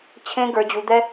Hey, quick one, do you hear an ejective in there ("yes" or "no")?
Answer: no